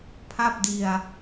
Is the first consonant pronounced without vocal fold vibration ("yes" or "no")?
yes